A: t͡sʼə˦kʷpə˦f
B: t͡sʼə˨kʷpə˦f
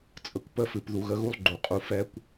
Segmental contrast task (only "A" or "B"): B